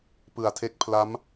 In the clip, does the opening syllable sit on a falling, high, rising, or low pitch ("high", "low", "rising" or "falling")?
low